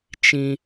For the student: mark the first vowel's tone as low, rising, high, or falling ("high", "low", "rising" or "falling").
high